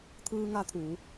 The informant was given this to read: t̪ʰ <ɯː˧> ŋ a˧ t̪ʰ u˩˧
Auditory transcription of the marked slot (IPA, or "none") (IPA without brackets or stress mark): ɯː˧